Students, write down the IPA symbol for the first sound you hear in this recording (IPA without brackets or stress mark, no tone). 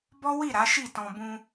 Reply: b